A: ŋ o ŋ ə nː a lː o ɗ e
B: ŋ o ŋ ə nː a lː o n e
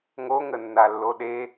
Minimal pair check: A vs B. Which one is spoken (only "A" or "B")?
A